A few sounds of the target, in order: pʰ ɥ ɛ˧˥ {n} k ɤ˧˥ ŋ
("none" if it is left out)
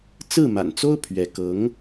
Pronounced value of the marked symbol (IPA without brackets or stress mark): none